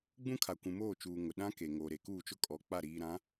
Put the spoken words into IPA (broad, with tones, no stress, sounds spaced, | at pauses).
ɡ͡b ũ˦ kʰ a˨ kʷ ũ˨ m oː˦˨ t͡ʃ uː˨ ŋ ʊ˨ ɗ ã˦ k e˨ ŋ oː˨ ɾ e˨ k uː˦˨ t͡ʃ ʊ˦ kʼ ɔ˨ k͡p a˦˨ ɾ iː˨ ɾ ã˨˦